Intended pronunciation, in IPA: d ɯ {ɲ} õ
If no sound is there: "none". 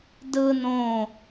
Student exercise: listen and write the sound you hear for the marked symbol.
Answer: n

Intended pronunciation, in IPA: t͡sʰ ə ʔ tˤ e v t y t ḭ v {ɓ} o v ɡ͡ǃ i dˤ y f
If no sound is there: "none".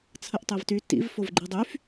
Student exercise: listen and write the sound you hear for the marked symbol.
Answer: f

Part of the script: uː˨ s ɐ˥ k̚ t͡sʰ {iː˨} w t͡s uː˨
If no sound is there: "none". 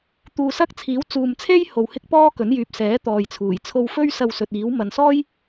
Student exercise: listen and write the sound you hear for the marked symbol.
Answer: iː˨˥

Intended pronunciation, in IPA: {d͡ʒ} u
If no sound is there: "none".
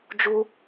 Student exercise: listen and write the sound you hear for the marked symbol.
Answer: d͡ʒ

